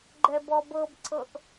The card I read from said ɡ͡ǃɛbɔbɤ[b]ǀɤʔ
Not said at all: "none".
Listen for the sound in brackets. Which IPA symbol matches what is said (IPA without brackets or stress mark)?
b